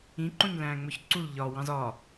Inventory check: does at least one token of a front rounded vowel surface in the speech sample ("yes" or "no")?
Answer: no